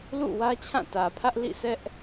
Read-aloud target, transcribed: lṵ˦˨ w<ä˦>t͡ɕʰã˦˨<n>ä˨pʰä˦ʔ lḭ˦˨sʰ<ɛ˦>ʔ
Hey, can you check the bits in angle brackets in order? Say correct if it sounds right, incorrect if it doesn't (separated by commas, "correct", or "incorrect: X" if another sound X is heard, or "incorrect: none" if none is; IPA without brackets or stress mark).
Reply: correct, incorrect: t, correct